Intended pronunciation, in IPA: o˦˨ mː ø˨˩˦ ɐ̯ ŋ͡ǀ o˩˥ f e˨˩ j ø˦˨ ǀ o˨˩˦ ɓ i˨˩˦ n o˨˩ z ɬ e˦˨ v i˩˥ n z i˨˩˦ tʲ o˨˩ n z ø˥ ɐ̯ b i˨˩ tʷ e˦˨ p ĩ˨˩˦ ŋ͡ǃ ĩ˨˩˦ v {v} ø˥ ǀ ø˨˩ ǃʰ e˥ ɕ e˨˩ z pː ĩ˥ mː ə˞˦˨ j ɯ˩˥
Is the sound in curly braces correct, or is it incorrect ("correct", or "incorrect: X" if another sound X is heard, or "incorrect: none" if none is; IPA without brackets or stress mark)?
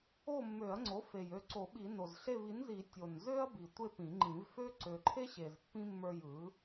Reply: incorrect: f